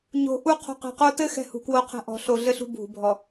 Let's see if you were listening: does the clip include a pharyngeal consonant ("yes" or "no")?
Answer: no